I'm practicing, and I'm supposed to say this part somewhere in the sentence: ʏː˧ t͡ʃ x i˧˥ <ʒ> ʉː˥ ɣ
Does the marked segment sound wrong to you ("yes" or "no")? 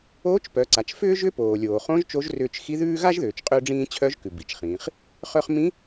yes